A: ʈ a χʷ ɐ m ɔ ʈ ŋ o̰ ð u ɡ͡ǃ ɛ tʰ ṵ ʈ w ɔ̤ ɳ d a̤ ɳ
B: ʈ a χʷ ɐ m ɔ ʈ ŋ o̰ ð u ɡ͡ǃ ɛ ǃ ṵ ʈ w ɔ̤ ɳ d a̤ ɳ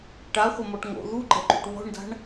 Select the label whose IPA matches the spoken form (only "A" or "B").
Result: B